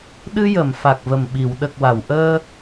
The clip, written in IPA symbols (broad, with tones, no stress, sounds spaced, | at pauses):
ɗ ɨ˧ j ə˨˩˨ m f a˨˩ k̚ v ə˨˩ m ɓ i˨˩˨ w ɗ ə˨˩ k̚ w a˨˩˨ w ʔ əː˧